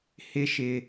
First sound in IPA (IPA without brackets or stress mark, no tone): h